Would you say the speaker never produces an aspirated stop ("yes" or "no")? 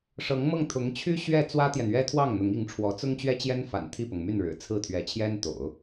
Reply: no